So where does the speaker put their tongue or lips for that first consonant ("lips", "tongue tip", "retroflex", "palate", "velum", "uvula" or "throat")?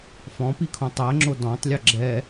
lips